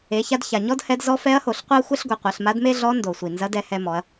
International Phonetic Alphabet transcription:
e˩˧ça˧d ça˩ɲɔ˥dhɛ˧˥d zɔ˧˥fɛ˧˥ɐ̯ho˩ɬ qʷɛ˥ɐ̯xʷɛ˥ɬɡʷɛ˩˧ qʷɐ˩˧ɬma˧˥dme˥ɮɔ˧˥ ndo˩ sʷi˩nzɐ˧˥dɛ˧ hɛ˧mɔ˩˧ɐ̯

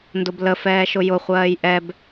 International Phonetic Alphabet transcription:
ndʊbləfɛːʃʊ jʊχʷɜːj ʔɛb

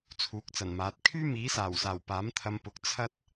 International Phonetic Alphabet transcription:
t͡sʰuː˨˥k̚t͡sɐ˨˩nmaː˨˥t̚ kʰyː˥miː˨˥saː˨˩wsaː˨˩w paː˨˥mt̪ʰɐ˧mpʊ˨˥k̚ t͡sʰɐ˥t̚

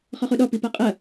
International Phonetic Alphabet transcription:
χɔχuɗɔ pipaqʼɐ

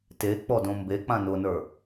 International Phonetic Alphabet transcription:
tek͡pɔdõ mbek͡pã nʊnə˞

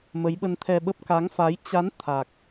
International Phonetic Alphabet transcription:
mə˨˦jɓə˧nt̪ʰɛ˧ɓə˦˥p̚ ka˨˦ŋfa˨˦j t͡ɕa˨˦n t̪ʰa˨˩k̚

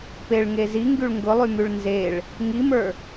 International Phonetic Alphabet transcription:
peɭŋe ziŋɡyɭ ŋɡʊlˠymyɭ nzeɭ | ŋimə˞

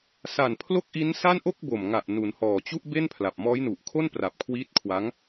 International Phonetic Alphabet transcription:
sa˨˩n pʰlo˥˩k̚ʔi˦˥nsa˥˩n ʔo˥˩k̚bo˨˩mŋa˨˩ʔ nu˩˦nhɔː˨˩t͡ɕu˥˩ʔ be˥˩npʰla˨˩p̚mɔː˦˥jnu˨˩ʔ kʰo˥˩npra˨˩p̚kʰwiː˦˥t̚kʰwa˦˥ŋ

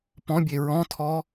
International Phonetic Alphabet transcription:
pɔ̃bʲe ɹɔ̃tʰɔ

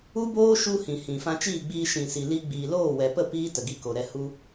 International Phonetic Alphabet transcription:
u˦boː˦ ʃu˦hĩ˨hĩ˨ fã˧t͡ʃiː˦˨ɡ͡biː˧ ʃĩ˨si˨li˧ ɡ͡biː˨loː˦˨wɛ˨pə˦˨ piː˦tə˨ɡi˧ko˨ ɾɛ˧ hu˧

